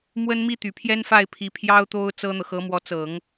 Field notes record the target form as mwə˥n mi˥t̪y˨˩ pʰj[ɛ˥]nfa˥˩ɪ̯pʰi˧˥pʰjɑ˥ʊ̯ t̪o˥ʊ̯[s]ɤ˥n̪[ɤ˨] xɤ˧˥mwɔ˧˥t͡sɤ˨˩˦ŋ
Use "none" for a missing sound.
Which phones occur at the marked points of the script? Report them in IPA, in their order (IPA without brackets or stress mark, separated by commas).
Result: ɛ˥, t͡s, ɤ˨